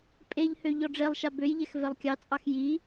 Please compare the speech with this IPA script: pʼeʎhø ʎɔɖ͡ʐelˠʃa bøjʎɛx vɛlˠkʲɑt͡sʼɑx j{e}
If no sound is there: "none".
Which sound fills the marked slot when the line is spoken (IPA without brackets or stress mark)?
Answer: i